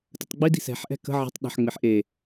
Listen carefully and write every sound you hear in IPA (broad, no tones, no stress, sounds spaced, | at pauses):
t ə tˤ ɡ͡b i d i̤ s ɛ̤ ħ ʔ ɛ̤ k ə̤ ʕ ə̤ tˤ ɗ ə̤ ħ ŋ͡m ɪ ħ ʔ e